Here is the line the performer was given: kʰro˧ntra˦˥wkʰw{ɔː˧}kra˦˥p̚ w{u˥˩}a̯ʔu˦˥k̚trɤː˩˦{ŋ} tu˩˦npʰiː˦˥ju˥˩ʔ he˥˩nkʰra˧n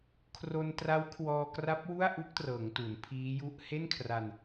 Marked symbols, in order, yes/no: yes, yes, yes

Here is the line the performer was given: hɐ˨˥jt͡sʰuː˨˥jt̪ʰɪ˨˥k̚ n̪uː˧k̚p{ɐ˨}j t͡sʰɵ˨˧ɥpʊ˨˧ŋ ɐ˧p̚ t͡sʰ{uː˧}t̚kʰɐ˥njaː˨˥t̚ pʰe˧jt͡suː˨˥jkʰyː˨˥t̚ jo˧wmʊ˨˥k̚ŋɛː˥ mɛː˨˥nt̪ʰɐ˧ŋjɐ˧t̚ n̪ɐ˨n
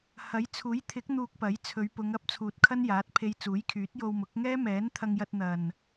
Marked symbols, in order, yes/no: no, no

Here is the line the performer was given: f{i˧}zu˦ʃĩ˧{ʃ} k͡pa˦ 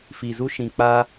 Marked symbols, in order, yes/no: yes, no

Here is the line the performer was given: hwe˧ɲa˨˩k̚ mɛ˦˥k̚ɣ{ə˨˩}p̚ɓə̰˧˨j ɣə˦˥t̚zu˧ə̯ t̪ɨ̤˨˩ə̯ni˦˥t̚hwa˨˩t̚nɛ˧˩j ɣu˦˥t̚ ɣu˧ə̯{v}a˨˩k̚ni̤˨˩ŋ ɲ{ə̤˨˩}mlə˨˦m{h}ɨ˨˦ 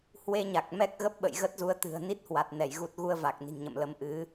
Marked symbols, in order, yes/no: no, yes, no, no

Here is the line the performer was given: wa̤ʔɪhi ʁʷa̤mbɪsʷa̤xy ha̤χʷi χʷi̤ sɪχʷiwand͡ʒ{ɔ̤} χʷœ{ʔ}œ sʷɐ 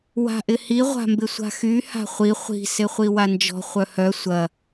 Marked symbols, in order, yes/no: yes, no

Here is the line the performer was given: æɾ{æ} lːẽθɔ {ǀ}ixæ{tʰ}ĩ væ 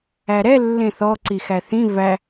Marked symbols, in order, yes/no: no, yes, no

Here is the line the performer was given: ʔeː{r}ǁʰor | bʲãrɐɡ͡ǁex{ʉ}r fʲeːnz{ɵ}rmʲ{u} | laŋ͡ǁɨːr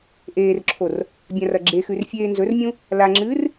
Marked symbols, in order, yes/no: yes, yes, yes, no

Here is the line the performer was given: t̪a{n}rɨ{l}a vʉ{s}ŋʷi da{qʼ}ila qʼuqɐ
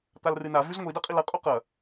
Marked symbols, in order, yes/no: no, no, no, yes

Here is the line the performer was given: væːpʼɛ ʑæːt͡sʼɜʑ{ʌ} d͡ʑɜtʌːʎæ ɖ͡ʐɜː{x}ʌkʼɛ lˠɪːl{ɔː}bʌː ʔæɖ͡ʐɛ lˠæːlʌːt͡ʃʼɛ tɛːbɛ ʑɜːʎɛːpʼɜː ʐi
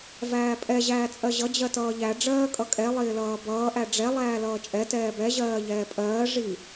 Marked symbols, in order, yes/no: yes, no, no

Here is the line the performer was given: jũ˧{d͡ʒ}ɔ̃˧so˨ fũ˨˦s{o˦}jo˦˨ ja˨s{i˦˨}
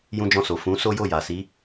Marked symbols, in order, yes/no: yes, yes, no

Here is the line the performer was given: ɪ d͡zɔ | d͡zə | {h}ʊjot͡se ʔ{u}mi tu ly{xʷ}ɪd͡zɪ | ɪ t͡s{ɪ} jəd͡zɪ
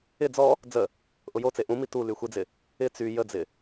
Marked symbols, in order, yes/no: no, no, yes, no

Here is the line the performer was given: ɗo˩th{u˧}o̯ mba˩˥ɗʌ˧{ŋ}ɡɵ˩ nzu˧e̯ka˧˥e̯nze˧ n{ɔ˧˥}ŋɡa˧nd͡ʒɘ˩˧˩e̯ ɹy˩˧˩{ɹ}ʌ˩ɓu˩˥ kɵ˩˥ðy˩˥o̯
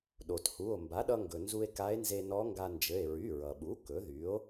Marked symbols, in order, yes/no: no, yes, yes, yes

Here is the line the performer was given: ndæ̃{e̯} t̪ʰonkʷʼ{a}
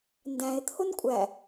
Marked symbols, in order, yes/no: yes, no

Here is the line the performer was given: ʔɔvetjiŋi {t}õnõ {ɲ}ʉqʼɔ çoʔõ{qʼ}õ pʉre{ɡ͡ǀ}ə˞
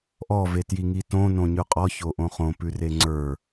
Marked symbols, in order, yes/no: yes, yes, no, no

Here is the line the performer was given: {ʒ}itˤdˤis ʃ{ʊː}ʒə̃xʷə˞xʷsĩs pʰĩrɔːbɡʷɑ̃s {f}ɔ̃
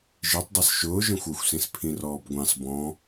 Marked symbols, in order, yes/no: yes, yes, no

